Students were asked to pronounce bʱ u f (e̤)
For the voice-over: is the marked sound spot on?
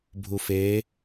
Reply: no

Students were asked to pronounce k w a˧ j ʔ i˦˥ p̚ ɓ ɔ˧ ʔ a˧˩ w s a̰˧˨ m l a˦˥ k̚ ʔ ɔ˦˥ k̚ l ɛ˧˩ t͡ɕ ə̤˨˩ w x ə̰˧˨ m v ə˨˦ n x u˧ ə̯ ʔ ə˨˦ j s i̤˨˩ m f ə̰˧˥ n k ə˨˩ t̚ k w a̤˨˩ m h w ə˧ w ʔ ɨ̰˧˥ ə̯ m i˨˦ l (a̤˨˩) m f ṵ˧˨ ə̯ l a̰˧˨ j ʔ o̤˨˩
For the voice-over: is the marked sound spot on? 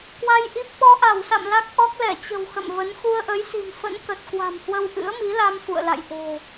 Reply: no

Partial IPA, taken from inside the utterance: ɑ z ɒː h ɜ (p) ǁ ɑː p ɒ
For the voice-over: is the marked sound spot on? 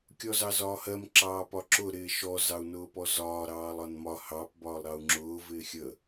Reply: no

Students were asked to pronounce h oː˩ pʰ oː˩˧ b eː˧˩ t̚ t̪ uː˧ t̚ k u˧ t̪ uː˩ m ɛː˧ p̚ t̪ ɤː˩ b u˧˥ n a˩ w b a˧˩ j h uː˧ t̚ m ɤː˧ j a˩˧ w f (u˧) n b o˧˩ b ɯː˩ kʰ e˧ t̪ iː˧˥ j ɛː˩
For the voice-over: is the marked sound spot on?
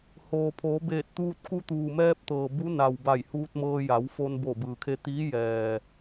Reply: no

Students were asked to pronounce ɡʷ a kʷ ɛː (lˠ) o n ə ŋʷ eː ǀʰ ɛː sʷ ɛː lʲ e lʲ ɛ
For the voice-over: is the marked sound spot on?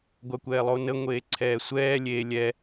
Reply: yes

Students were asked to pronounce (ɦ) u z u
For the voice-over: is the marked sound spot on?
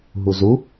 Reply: yes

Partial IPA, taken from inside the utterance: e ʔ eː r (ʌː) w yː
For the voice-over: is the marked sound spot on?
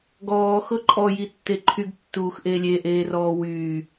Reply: no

